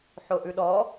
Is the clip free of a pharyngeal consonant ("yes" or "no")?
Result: no